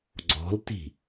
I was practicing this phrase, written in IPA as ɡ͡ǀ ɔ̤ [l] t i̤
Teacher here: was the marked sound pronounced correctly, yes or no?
yes